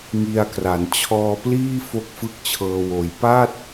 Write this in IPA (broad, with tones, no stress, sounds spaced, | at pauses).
ŋ i˧ a̯ k r a˩˦ n t͡ɕʰ ɔː˧ p l iː˥˩ f o˥˩ k̚ f ɯ˥˩ k̚ t͡ɕʰ ɤː˧ w oː˨˩ j p a˥˩ t̚